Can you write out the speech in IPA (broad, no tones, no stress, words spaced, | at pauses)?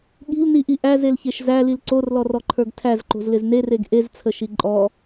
ɠi̤lniʔi ʔæzelçeʃ zælil ǀorlɔrɔǃʰə˞ɡ tʰæzǃo̤zlɪz nereɡ ʔezt͡sʰəʃi ǃʼɔ